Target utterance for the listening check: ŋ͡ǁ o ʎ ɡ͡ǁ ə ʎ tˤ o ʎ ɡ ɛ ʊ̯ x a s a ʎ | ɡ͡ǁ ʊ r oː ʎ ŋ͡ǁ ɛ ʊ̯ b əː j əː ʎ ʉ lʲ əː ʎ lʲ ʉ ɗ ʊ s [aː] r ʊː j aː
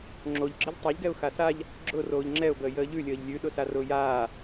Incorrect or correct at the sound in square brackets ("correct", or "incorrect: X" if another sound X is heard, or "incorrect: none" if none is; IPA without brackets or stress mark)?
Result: incorrect: a